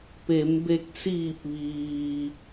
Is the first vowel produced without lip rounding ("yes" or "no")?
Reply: yes